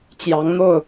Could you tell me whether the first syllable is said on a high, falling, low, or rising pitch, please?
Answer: rising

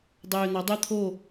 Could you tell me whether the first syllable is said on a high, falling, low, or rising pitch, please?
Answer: low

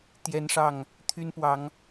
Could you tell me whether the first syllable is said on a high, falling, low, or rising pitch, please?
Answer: high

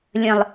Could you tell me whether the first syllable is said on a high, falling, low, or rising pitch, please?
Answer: low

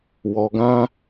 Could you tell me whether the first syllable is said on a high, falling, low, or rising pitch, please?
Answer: low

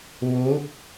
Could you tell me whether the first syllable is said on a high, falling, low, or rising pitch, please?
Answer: rising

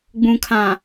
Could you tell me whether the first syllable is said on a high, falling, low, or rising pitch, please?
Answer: low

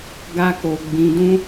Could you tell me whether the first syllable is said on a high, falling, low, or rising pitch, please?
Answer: high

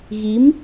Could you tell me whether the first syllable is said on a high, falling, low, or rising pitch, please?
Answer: rising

